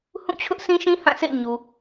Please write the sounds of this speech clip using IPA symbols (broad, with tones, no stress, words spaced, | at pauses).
hũ˦˨t͡ɕʰʊ˦ʔsĩ˦ʃĩ˦ hã˦˨sʰḛ˦˨ɪ̯ ɲu˨